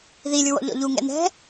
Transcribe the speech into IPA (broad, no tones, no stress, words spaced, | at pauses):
ðilʲuwɔ̰ ʎɔ̰ʎuŋɛ̰ nɛ̤